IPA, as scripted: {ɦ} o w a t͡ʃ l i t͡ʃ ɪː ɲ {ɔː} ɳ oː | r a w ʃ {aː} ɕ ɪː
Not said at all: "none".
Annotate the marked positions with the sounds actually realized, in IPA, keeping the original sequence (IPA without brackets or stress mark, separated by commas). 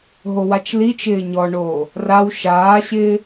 ɦ, ɔ, aː